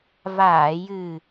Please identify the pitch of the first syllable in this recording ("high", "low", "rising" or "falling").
low